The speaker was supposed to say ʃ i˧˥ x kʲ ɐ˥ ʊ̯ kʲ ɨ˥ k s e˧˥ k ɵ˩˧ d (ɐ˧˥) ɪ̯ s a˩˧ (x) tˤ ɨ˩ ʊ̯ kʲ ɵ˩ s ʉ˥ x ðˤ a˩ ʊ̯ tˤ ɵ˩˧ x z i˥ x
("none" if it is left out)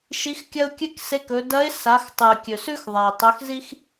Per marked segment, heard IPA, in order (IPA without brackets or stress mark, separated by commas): ɐ˧˥, x